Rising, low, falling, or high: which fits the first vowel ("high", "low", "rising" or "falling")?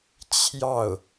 falling